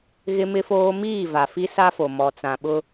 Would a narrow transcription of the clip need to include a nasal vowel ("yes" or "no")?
yes